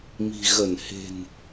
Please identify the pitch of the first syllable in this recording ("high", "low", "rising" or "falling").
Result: low